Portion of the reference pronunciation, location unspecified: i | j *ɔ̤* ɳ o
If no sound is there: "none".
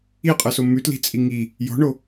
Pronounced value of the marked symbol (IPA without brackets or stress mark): ɔ̤